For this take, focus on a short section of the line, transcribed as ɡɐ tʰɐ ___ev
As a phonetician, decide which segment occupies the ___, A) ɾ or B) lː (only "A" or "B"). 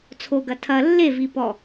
B